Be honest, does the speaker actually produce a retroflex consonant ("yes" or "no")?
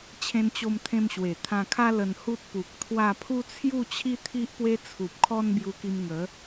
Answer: no